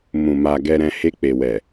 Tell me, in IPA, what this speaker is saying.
m ũ˨ m a˨ ɡ ɛ˨ ɾ ɛ̃˨ h e˧ k͡p e˨ w ɛ˨

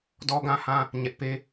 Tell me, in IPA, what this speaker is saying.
d ɔ˦ ɡ ã˦ h ã˦ | ɲ ɛ˦ ʔ p e˦

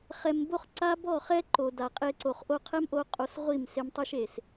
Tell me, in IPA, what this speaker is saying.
χ ɛ˧ m b o˦ χ ǀ a˦ b ɔ˦˨ χ ɛ˦ ǃ o˨ d a˨ qʼ e˧ ǀ o˨ χ ʔ o˧ qʰ ɛ˦ m ʔ o˧ qʼ o˧ s ʁʷ i˦˨ m s e˧ m tˤ i˦ ʃ e˨ s

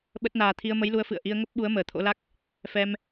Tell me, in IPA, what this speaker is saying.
ɓ ə˦˥ t̚ n aː˧ t̪ʰ i˧ ə̯ m ə˨˦ j l u˨˦ ə̯ f ɨ̰˧˨ ə̯ ʔ i˧ ə̯ ŋ ə˦˥ p̚ ɓ u˨˦ ə̯ m əː˨˩ t̪ʰ o̰˧˥ l a˦˥ k̚ | f ɛ˧ m

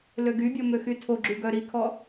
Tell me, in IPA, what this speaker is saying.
l ø ɡ y bʲ ɔ m ø x y tʰ o ɡ͡ǁ y ɡ œ ɾ i kʰ ɔ

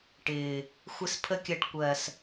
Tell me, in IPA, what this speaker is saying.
ʈ ɪː˨ | xʷ ɪ˧ s pʰ ə˧ kʲ ɜ˨ ʈ kʷ ɜ˨ s

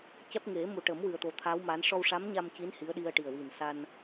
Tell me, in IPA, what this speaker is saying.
c ɛ˦˥ p̚ ŋ e˨˩˦ m u˨˩ ʈ ə˨˩˦ m w ɨ˨˩ ə̯ t̪ o˨˩ t̪ʰ a˧˥ w m a˧˥ n ʂ ɔ˧ w ʂ a˧˥ m ɲ a˧ m c i˧˥ n h i˧˥ ə̯ ɗ i˧ ə̯ ʈ i˨˩ ə̯ w i˨˩ n s a˧ n

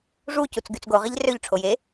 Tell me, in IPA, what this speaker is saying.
ʐ u c u t͡s ɡ y t͡s ɡ o ʁ i ʎ r ø ʎ ʈ͡ʂʰ o j e

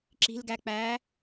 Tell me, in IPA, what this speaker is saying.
ǁ i̤ l ɡ æ k͡p æː

